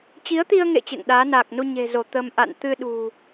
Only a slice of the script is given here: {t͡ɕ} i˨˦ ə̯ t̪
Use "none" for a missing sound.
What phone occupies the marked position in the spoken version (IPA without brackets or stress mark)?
t͡ɕ